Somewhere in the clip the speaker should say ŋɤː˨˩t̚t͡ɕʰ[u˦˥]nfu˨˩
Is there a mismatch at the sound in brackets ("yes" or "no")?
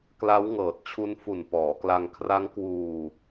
no